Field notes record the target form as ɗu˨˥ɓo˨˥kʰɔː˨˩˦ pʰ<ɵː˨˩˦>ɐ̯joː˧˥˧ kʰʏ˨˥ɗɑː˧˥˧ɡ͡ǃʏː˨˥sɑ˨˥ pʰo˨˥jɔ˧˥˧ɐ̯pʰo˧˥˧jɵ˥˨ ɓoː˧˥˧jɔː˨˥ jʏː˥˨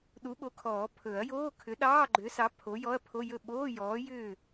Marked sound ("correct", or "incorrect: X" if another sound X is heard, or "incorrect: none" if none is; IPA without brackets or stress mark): incorrect: ɵ˨˩˦